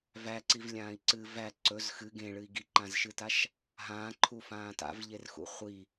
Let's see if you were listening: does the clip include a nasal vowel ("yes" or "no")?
yes